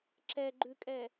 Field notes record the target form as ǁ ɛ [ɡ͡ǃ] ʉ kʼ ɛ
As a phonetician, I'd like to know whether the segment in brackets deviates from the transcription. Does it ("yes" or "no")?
no